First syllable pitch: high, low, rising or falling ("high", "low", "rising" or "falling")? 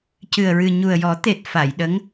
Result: low